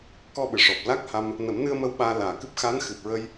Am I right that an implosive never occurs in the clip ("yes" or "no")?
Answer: no